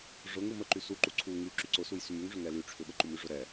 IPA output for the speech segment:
ʐ ʊ ŋ u m ə ǃ y s u ǃ u ǀʰ u ŋ y ǁ y ǀ ʊ s u j s y m y ŋ ʐ ʏ ŋ ɛ l y ʈ͡ʂʰ ʏ ɓ ə ǃ u m y ʐ ʊ ɾ ɛ

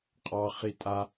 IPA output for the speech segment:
qʼ ɑ χ i tʼ a

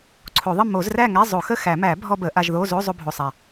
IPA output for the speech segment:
ǀʰ o˨˩˦ ðˤ ə˥˨ m o˨˩˦ z r æ˥˨ ŋ æ˧˥˧ zˤ o˨˩˦ x ə˥˨ x æ˨˩˦ m æ˨˩˦ bʱ ɔ˧ b ə˨˩˦ ʔ a˧ ʒ ð o˧˥˧ z o˧˥˧ zˤ o˧ bʱ o˨˩ sˤ a˨˩

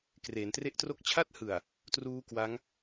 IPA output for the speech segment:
k r eː˩˦ n t r e˥˩ ʔ t r o˦˥ k̚ t͡ɕʰ a˥˩ t̚ h ɯ˨˩ a̯ | t r uː˦˥ k w a˦˥ ŋ

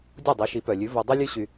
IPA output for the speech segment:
dʲ o˥˩ dˤ i˩˥ ʃ i˩˥ p œ˩ lʲ ʉ˩˥ v o˧ dˤ œ˥ lʲ ʉ˥ ɕ y˧

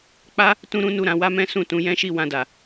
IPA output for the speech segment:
k͡p a˦ | t ũ˦ ɾ ũ˦ n u˦˨ ɾ ã˨˦ w a˦ m ɛ̃˦ s ũ˦˨ t ũ˧ j ɛ̃˦ ʃ i˦˨ w ã˧ d a˨

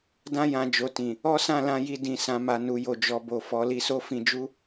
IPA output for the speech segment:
d ã˧ j ã˨ d͡ʒ o˨ t ĩ˨ | ɔ˦ s ã˦˨ l ã˧ j i˧ d ĩ˨ s ã˨ m a˨ n u˨ j o˨ d͡ʒ ɔ˨ b o˨ f ɔ˨˦ l i˧ s o˦ f ĩ˧ d͡ʒ u˦

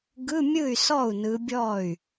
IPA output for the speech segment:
ɡ ɯ˧˥˧ mʲ ɯ˥˩ y̯ s ɔ˥˩ u̯ n ɯ˨˦ bʲ ɔ˥˩ y̯

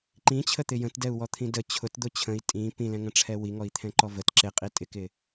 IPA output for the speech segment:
ǃ ĩ t͡ɕʰ ə t̪ ɪ j ə̃ t d ɛ u̯ w ɔ t̪ʰ ĩ d ə t͡ɕʰ ʊ t d̪ ʊ t͡ɕʰ ə̃ i̯ tʼ ĩ p ĩ l ɛ̃ ŋ ə̃ ʈ͡ʂʰ ɛ w i ŋ ɔ i̯ t̪ʰ ɛ̃ ǃ ɔ v ə t ǁ ɪ qʼ i tʼ ɪ k ɪ

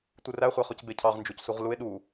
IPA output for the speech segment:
tʷ ɯ r æ χʷ æ χ o c b e cʰ ɑ ʁ n d͡ʒ u c s u ʁ l u e̯ ɗ u

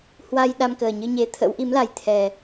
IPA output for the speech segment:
h w a˧ j ɗ a˧ m k əː˨˩ ɲ ɨ˧ ɲ e˨˦ t̪ʰ ə̰˧˥ w ʔ i˨˦ m l a˨˩ j t̪ʰ ɛ˨˩

